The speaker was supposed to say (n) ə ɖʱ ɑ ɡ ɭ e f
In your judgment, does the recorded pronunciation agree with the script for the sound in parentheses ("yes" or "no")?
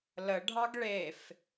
no